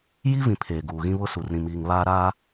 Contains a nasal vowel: yes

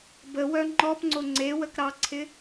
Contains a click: yes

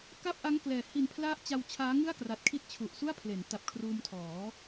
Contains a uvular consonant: no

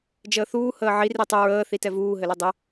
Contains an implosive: no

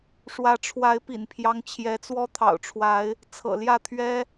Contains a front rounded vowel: no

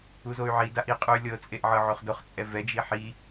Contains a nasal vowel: no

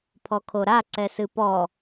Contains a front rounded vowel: no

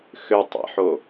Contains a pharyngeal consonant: yes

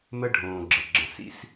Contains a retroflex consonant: yes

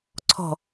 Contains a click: yes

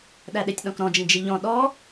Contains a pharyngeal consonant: no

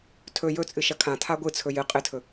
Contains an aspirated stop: yes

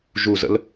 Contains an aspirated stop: no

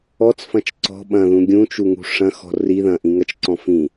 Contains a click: yes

